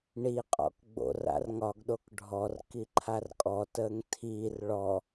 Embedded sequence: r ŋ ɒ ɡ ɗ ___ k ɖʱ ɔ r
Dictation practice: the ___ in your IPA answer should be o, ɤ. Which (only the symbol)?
o